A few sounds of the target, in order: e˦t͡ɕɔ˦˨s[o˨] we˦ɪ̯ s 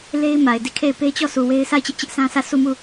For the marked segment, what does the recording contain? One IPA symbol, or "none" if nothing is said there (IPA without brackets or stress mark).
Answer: u˨